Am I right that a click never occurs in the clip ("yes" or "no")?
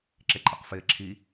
no